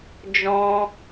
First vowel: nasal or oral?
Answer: nasal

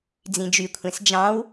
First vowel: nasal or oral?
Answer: nasal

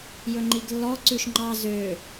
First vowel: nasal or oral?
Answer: oral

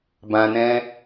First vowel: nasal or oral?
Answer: nasal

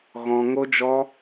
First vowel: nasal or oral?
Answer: nasal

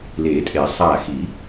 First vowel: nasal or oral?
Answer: oral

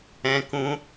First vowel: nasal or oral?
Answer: nasal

